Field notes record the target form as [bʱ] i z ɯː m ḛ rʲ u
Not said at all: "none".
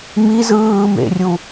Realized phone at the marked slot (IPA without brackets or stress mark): m